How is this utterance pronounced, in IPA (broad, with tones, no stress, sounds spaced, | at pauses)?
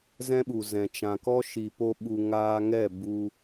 z ɛ̃˦ ɓ u˨ z ɛ̃˨ t͡ʃ ã˨ k ɔ˦ ʃ i˨ p o˦ ɓ u˧ ŋ aː˧ ŋ ɛ˦˨ b u˧